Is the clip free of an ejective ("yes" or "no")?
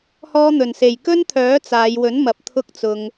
yes